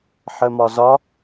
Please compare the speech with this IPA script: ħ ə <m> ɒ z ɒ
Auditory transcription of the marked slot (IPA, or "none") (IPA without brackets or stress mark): m